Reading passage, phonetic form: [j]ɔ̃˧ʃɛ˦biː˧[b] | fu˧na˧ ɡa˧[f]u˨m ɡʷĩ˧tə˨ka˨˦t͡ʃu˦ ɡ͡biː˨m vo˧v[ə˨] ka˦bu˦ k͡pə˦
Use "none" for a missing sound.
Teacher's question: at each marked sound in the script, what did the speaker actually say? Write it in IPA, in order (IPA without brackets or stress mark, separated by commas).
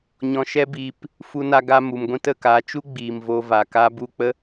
ɲ, p, m, a˨